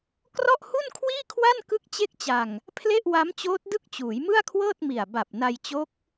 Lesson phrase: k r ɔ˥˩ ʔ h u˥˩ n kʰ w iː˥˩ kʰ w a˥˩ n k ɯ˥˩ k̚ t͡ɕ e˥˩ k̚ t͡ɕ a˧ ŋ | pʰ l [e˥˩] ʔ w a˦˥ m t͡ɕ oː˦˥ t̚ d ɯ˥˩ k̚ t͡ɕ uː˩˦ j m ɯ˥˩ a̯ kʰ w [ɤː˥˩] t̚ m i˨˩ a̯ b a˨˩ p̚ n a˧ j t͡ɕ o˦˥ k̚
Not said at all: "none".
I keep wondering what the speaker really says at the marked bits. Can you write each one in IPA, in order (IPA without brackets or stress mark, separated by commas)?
e˥˩, ɤː˥˩